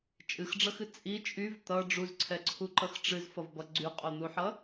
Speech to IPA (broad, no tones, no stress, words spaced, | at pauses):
t͡ʃʼɨxɖ͡ʐʌxɨ t͡sʼi t͡ʃʼyv t̪ʌ ɖ͡ʐuzǀʰɛǀʰuǃʌx ʈ͡ʂɨzfʌvbʌ ɡ͡ǀyqʼon̪uħʌ